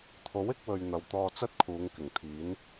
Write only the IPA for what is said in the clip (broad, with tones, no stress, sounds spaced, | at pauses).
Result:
t̪ʰ o˨˥ w ɪ˨˥ k̚ w ɵ˨ ɥ n̪ ɐ˨ w t̪ ɔː˧ t͡s ɐ˥ t̚ kʰ uː˨˧ ŋ k ɪ˨˩ ŋ t̪ʰ iː˨˥ n